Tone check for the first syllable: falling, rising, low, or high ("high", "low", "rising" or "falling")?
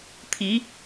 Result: rising